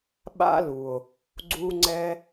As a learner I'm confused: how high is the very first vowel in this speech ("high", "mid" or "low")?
low